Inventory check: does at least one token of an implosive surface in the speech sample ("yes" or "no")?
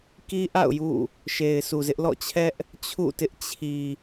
no